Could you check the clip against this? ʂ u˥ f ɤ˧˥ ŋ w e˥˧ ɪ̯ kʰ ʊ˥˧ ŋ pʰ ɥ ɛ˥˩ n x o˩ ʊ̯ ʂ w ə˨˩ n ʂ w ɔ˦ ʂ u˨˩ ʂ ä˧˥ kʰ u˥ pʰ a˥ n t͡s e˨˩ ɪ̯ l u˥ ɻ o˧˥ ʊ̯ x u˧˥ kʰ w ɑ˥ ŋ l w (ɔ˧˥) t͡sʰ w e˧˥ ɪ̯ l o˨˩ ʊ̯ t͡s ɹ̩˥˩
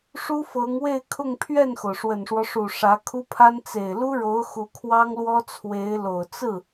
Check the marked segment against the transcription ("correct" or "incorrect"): incorrect